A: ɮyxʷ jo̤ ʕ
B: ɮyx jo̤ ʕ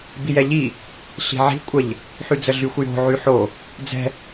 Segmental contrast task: A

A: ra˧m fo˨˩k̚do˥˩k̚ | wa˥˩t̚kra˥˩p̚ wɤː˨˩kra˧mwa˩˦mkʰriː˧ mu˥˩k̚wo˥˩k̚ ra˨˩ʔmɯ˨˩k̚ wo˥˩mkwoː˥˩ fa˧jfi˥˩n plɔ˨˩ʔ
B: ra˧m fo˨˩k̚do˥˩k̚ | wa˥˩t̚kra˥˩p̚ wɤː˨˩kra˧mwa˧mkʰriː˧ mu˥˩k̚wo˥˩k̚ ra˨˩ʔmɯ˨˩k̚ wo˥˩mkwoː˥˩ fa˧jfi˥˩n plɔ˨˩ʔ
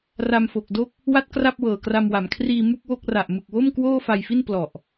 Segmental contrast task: A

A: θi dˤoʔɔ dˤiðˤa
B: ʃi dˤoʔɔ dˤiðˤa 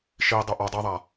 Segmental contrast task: B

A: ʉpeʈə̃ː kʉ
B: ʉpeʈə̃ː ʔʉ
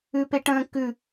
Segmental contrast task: A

